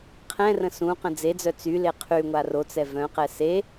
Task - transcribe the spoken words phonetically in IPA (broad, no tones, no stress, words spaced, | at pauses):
qʰɛ̃rə̃ sũqə̃ d͡zed͡zœ t͡syle qʰyŋʷa rot͡sɛ vœ̃qɛ se